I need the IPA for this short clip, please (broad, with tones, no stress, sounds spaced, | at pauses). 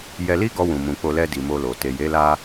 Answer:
j ɛ˧ l i˦ ɡ ɔ˧ w ũ˨ m ũ˨ k͡p o˧ l ɛ˧ d i˨ m o˧ l o˨ t e˨ j e˨˦ l a˧